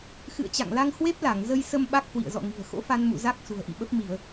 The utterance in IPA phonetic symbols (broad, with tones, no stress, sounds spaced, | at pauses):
x ɨ̰˧˨ ə̯ t͡ɕ a̰˧˨ ŋ l a˧ ŋ h w e˦˥ p̚ l a˧˩ ŋ z ə˧ j s ə˧ m ɓ a˦˥ k̚ h w ḭ˧˨ ə̯ z ɔ̰˧˨ ŋ i̤˨˩ ə̯ x o̰˧˥ f a˧ n m ṵ˧˨ z a˦˥ k̚ s ṳ˨˩ ə̯ ʔ ḭ˧˨ ɓ ə˦˥ p̚ m i˧˩˨ ə̯